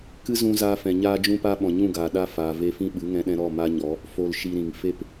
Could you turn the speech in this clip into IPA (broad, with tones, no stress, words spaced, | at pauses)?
kɨ˦zũ˧zaː˧fɛ̃˨ ɲaː˧d͡ʒũ˧pa˧ ɓɔ̃˨ɲũ˦˨ɡaː˨ ɗa˧ faː˨ve˧fĩ˦ ɓɨ˨˦ŋɛ̃˧ɗɛ̃˧ ɾɔ˦˨ma˦ɲɔ˨˦ | fo˧lʃi˧ɾĩ˨ŋ fe˦p